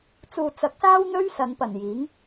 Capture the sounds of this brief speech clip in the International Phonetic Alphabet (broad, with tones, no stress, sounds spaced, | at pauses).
t͡s uː˨ t͡s ɐ˨˥ k̚ s aː˥ w n̪ ɵ˥ ɥ s ɐ˨˧ n p ɐ˨˩ n j iː˨˥ ŋ